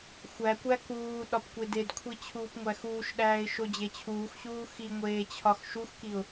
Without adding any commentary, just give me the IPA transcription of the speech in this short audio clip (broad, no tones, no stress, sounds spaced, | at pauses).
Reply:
xʷ æ kʷ æ k uː ɗ ɒ p kʷ e d e d kʷʰ i t͡ɕʰ uː p ŋʷ æ x uː ʃ ɗ æː ɪ̯ ʃ o d͡ʑ e t͡ɕʰ uː x ɕ uː x i ŋʷ eː t͡ɕʰ ɒ x ʃ u x k i ʊ̯